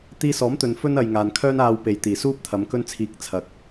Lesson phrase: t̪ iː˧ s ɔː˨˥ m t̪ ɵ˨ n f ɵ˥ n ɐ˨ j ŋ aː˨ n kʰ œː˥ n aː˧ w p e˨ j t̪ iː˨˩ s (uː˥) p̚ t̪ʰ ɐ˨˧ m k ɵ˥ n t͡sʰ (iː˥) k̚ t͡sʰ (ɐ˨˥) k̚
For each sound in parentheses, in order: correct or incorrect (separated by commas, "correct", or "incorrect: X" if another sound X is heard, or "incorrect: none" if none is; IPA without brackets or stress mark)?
correct, incorrect: iː˧, incorrect: ɐ˨